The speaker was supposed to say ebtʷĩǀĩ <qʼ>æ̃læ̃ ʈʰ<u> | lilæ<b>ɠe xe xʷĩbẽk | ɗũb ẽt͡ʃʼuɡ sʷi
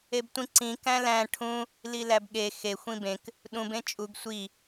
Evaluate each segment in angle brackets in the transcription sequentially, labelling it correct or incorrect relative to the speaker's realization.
incorrect: k, incorrect: ũ, correct

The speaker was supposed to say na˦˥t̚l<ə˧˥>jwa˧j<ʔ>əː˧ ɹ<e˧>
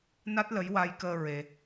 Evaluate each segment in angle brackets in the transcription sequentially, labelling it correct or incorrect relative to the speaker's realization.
correct, incorrect: k, correct

